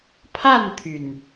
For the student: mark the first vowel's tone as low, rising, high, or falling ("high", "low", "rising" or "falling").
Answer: falling